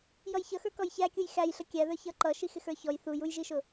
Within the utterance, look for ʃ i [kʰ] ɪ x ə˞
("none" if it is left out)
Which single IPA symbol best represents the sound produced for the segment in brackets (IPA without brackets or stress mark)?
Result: x